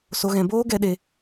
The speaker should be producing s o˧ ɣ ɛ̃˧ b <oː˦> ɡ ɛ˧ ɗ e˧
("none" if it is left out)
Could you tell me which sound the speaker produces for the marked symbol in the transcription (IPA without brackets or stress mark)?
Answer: oː˦